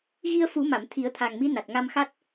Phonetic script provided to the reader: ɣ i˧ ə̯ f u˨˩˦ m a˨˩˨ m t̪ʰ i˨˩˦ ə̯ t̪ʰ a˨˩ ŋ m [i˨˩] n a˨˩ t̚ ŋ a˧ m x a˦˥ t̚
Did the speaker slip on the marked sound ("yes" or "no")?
yes